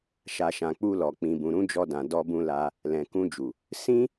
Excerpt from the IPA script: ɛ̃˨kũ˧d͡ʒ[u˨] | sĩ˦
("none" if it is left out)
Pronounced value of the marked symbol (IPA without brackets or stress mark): u˨